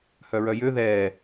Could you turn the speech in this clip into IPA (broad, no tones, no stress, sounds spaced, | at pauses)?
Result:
h œ ɹ œ j ø ð ɛː